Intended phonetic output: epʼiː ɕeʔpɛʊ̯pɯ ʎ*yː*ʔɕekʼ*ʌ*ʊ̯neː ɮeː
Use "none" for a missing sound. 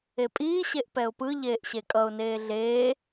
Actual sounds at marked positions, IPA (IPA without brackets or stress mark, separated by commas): eː, ʌ